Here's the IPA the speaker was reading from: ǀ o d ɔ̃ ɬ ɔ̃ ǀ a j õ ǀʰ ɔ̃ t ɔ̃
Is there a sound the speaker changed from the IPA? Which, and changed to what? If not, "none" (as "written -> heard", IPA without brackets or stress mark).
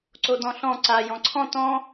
õ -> ɔ̃